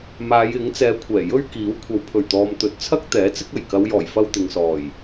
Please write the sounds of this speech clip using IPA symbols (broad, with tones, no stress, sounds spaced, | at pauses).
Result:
m aː˨˧ j ɪ˨˥ ŋ t͡s ɛː˨˧ kʷʰ ɛː˨˩ j ɵ˥ ɥ k iː˨˥ w kʷʰ ɐ˨ w pʰ ɵ˨˩ ɥ t̪ ɔː˨ m t̪ ɵ˨˥ t̚ t͡sʰ ɐ˥ k̚ t̪ ɛː˨˥ t͡s ɪ˥ k̚ ɐ˨˩ j k ɐ˨˧ w j ɔː˨˩ j f ɐ˧ w t̪ ɪ˨ ŋ s ɔː˨˩ j